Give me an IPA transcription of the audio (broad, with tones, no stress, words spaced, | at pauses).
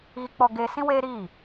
ɣi˦k͡pɔ˦ɡeː˦ sĩ˦weː˦ɾiː˦˨